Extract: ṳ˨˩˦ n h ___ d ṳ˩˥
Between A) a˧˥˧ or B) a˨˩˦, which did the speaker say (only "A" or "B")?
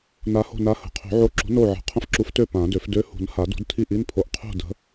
B